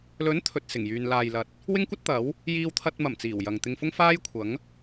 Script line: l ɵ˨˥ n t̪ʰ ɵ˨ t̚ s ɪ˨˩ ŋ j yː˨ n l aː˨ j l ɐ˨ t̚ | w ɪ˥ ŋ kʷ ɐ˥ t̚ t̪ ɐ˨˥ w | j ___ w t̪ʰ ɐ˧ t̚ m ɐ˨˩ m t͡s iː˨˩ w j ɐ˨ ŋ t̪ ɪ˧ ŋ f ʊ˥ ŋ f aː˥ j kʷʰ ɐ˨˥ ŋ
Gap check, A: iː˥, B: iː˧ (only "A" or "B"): B